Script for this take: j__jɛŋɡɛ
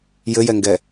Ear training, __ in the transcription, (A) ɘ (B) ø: A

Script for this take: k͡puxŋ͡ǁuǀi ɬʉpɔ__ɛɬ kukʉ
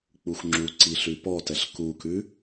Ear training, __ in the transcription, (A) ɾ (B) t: B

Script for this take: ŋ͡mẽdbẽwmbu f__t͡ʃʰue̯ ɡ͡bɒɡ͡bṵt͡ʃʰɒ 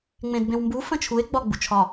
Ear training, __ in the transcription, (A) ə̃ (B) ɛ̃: A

